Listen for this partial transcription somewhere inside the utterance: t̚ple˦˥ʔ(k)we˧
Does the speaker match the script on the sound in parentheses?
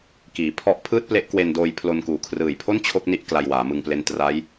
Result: yes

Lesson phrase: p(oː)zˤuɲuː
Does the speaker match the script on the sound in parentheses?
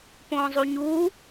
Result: no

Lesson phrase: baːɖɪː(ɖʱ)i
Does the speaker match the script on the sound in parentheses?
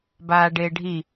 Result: yes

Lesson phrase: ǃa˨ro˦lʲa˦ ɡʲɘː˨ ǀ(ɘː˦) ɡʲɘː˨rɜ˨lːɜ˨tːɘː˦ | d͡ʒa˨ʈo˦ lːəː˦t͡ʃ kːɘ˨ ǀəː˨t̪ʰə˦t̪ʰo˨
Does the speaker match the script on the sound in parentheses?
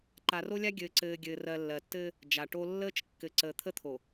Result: no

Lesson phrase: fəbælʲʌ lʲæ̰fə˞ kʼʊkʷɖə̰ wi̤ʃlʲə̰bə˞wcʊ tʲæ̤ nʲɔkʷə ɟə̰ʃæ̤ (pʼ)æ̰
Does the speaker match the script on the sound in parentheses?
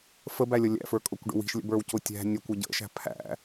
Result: no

